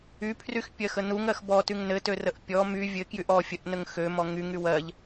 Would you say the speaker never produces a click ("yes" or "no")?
yes